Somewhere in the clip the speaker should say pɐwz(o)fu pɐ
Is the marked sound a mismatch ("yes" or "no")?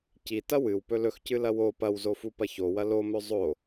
no